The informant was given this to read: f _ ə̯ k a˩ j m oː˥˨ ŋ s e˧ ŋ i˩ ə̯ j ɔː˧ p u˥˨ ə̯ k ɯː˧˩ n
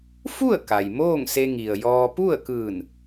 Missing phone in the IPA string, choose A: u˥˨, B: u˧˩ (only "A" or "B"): A